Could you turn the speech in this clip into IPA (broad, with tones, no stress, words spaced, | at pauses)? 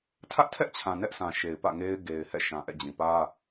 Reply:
tʰä˦ʔtʰɛ˦ʔt͡ɕʰã˨ nɛ˦ʔsʰã˨ʃe˨ɪ̯ pä̰˦˨ŋe˦ɪ̯ ɡe˨ɪ̯hɛ̰˦˨ʃã˨ ʔɛ̰˦˨d͡ʑĩ˨ pä˦